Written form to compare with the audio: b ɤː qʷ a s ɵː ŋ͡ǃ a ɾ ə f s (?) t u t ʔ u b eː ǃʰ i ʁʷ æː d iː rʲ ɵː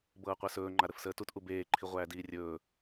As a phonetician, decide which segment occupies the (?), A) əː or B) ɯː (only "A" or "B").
A